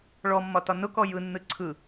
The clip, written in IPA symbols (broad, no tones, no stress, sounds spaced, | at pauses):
ɭ ɔ mː ɒ t ɒ n ʊ k ɔ j ɯ nː ɯ ǀʰ ɯ